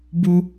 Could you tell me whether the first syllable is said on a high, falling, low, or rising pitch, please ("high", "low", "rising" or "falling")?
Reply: high